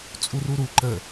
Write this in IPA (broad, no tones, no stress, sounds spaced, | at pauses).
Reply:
t͡sʼ u r u ɾ u ǃ ə